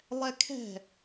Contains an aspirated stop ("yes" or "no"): yes